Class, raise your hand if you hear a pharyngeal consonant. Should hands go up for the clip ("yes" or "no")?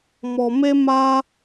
no